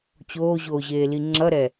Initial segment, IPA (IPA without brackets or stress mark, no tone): t͡ɕ